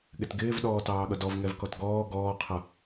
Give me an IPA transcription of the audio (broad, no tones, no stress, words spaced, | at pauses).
ɠɪtɡɪːv ɗɔːtɑːɠʌdɔv ŋɛvkɔtɡɔː ɡɔːqʰʌ